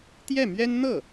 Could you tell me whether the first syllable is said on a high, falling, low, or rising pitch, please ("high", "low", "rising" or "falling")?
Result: falling